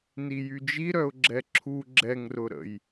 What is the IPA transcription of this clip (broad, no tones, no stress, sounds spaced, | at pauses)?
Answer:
n i j y d͡ʒ i ɾ œ ʊ̯ ɡ͡ǁ ɛ ǁʰ u ɡ͡ǁ ɛ ŋ r ʊ ɾ ə̰ j